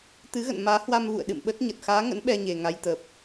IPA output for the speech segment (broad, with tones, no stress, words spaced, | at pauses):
t̪ɨ˨˦ɣə̰˧˨n maː˨˦hwa˧mvṵ˧˨ə̯ ɗɨ̰˧˨mɓə˦˥t̚ɲə˨˩t̚ xaː˨˦ŋə̰˧˥n ɓɛ˧ɲe˨˩ ŋa˨˦jt̪ə˨˩p̚